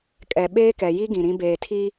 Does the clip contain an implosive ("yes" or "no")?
yes